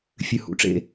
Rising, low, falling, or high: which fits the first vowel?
low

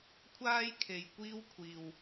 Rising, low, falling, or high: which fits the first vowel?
high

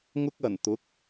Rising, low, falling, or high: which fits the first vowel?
high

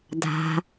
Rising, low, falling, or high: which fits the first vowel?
low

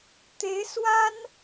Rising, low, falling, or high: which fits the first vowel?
rising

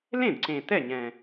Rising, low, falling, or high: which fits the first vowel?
falling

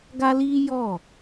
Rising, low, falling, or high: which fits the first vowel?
high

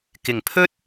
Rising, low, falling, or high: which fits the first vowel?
low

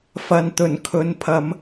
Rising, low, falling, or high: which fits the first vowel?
low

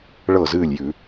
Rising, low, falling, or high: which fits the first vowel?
falling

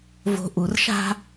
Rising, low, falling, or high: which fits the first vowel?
low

